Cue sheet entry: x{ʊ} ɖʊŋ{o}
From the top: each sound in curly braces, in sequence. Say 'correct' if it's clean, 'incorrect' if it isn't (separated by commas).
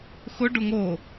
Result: correct, correct